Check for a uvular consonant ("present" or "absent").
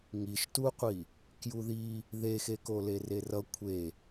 present